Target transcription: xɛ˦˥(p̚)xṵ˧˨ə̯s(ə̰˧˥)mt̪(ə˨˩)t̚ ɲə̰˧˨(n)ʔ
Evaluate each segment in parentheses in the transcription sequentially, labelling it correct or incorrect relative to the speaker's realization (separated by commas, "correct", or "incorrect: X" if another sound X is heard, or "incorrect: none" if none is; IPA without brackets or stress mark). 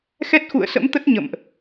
incorrect: t̚, correct, incorrect: ə˦˥, incorrect: m